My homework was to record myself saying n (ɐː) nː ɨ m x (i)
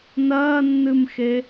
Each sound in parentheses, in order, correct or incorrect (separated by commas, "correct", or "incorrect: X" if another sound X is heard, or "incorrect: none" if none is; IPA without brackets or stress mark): correct, incorrect: e